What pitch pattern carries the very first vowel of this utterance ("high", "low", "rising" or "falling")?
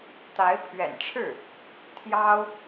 rising